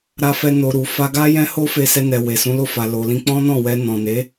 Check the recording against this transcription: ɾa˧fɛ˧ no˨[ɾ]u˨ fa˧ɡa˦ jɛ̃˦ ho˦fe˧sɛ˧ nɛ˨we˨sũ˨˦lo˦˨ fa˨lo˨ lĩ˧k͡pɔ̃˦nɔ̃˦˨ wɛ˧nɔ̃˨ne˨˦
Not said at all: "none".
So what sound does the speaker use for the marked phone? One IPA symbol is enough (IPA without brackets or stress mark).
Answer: ɾ